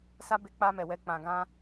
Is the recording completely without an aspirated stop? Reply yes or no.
yes